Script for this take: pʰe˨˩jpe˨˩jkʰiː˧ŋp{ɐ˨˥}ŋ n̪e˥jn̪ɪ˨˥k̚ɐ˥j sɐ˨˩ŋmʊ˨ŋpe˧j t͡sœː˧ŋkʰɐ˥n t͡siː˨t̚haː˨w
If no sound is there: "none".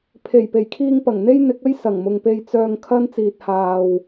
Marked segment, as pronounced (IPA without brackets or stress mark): ɐ˨˩